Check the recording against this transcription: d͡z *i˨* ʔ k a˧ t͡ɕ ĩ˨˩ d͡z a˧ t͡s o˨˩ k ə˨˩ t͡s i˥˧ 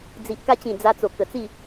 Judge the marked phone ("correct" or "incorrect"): correct